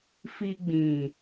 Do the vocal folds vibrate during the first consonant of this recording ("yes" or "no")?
no